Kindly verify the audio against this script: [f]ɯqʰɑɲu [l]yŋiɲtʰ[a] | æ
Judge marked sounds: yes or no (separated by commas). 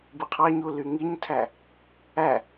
no, yes, no